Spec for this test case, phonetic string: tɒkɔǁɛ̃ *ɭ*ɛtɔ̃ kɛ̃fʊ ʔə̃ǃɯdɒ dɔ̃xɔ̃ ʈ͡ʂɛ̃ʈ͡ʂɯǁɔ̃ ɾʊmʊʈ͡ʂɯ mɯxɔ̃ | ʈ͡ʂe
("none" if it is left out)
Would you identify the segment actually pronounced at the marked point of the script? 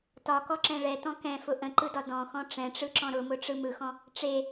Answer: ɭ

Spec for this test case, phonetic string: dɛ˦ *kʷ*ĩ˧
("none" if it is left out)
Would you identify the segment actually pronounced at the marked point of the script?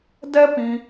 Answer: p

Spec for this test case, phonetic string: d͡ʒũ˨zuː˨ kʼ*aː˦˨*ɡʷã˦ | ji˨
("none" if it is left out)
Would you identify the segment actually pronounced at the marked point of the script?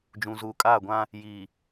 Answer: aː˦˨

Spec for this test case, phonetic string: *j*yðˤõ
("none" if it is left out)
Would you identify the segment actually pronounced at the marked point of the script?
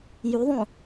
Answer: j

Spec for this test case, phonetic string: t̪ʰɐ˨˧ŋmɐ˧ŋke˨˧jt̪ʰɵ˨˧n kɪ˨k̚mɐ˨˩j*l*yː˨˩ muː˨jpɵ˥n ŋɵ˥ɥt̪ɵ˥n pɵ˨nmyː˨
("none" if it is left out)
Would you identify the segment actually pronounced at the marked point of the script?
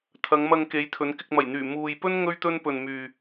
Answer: n̪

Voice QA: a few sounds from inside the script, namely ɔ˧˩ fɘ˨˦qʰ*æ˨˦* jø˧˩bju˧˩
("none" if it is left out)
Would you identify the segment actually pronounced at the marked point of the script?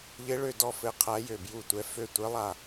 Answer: æ˨˦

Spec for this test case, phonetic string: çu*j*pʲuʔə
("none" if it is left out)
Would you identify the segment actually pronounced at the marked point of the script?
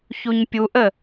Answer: ɲ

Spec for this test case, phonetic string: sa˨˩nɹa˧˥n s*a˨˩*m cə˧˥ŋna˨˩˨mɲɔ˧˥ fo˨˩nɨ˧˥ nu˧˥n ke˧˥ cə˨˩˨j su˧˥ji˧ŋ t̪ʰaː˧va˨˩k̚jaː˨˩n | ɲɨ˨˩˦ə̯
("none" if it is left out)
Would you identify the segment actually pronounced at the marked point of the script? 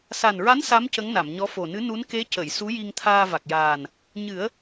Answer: a˧˥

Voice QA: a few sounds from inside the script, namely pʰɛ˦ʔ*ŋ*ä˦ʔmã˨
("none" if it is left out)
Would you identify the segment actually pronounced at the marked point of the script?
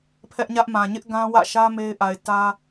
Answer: ɲ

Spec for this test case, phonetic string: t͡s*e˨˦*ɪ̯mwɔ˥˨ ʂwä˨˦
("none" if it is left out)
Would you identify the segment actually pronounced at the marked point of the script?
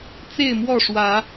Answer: e˥˨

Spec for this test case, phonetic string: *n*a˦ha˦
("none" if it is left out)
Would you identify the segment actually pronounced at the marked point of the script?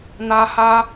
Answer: n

